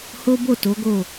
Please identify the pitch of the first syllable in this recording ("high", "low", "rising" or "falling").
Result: high